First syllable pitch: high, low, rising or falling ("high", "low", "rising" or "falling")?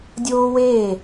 high